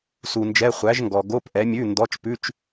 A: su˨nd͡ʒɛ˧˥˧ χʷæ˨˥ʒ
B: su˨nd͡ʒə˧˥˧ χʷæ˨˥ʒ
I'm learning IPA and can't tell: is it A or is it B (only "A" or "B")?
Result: A